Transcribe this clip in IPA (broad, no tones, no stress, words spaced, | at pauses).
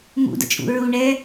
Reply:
mṵdə̰t͡ʃʼṵ ɹu ɳɛ